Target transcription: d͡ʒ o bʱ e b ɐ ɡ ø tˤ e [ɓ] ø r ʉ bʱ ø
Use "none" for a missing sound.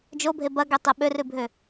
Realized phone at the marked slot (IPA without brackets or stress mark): ɓ